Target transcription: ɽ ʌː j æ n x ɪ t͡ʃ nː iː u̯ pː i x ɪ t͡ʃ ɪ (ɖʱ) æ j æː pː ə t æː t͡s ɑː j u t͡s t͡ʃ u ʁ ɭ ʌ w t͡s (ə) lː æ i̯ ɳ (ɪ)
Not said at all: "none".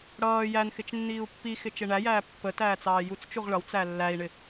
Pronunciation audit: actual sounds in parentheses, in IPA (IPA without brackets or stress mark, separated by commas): ɳ, æ, ɪ